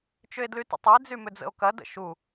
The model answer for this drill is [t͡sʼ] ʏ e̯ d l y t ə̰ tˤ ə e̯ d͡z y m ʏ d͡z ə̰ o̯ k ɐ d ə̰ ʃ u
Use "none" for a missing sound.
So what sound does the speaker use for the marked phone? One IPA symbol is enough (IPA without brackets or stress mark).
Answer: t͡ʃ